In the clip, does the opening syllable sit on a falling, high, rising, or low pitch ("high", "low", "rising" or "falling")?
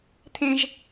high